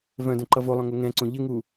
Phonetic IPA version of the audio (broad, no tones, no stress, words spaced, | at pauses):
vœ̃ dœ̃ǃʌvolˠœ̃ ŋoŋɛ̃ǀõ ʎɪŋu